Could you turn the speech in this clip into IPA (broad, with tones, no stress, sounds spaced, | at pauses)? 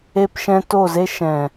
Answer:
e˧ p ʃ ɛ̃˧ t o˦˨ z e˦ ʃ ɛ̃˨